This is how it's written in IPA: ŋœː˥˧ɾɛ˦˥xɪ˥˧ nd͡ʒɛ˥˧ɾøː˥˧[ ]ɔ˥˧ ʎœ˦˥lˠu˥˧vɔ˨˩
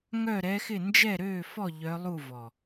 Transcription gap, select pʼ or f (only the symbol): f